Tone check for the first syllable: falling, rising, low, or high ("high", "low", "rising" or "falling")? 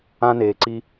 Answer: high